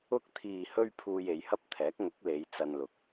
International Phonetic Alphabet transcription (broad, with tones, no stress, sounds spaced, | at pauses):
ʊ˧ k̚ t̪ʰ iː˨ h ɵ˧ ɥ pʰ uː˧ j e˨˧ j h ɐ˥ p̚ t̪ʰ ɛː˨˥ k̚ ŋ ʊ˨˥ k̚ l e˨˧ j t͡s ɐ˧ n l ʊ˨ k̚